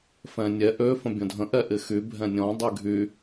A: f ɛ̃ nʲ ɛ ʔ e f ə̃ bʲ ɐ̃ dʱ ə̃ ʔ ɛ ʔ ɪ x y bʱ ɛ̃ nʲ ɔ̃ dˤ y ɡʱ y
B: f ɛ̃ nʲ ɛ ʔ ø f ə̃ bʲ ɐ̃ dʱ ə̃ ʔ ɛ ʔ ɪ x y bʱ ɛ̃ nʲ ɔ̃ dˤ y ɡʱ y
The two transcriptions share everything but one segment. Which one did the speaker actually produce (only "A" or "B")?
B